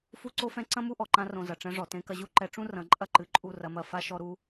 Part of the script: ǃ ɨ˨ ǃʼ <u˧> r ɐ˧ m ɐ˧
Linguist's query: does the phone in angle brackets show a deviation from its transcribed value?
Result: yes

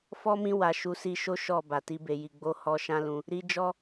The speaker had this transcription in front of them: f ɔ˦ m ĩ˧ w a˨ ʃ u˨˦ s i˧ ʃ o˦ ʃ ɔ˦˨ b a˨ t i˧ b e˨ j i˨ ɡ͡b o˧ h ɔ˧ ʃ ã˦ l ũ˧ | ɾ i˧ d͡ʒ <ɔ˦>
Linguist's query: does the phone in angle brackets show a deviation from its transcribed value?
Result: no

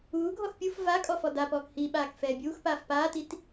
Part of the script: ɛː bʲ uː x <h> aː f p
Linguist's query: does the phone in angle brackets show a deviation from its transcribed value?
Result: yes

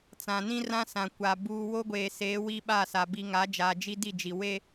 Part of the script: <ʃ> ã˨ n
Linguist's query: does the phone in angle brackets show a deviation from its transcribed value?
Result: yes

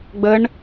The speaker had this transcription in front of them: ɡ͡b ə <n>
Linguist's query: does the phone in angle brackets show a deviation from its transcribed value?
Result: yes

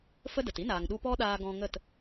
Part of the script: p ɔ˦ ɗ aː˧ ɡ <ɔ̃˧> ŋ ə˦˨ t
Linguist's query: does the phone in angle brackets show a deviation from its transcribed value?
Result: no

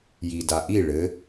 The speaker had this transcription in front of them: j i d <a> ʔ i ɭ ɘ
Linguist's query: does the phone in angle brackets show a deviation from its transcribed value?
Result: no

